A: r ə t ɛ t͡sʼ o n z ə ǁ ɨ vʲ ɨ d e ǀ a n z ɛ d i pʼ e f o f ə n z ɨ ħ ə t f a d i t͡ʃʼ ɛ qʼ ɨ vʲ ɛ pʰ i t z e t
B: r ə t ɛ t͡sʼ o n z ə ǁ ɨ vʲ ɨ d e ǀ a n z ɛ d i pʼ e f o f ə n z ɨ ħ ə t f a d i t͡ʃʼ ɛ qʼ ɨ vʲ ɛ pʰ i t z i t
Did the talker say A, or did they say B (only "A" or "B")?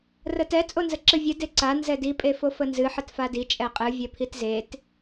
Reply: A